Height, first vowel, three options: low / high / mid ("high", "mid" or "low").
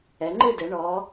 mid